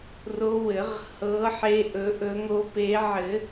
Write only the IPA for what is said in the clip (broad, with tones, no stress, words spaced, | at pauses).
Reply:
ro˨˦ wɘ˨˩˦ʁhɤ˨˦ ħe˨˦ʔɵ˨˩˦ʔɵ˨˩˦ŋo˨˦ pe˨˩˦ ʕɘ˨˩˦